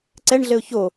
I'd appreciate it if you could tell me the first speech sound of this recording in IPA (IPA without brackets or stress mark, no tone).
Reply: ǀ